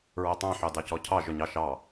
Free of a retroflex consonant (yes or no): yes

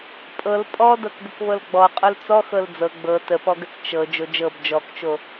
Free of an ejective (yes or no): no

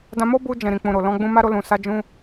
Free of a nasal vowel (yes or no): no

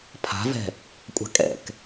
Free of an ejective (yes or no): no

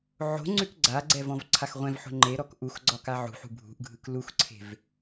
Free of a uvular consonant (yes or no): no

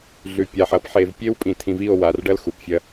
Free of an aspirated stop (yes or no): no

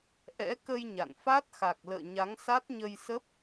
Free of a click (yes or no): yes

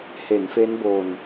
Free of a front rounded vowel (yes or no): yes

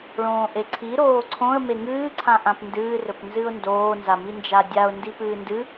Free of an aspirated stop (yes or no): no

